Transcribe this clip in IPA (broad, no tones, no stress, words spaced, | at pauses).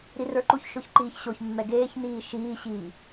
ɾirə˞ǃuçʃoç ǃiːçɕoçmːɛ ɡeːçniː ʃiːɕiː